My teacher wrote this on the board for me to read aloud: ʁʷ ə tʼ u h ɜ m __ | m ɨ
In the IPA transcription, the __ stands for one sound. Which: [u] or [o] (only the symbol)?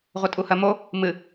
o